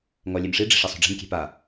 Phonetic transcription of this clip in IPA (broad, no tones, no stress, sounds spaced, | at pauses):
ŋ ɔ lʲ e m ʂ i ɖ͡ʐ i̤ ʂ ɛ sˤ ṳ ɖ͡ʐ e̤ m kʲ e̤ p a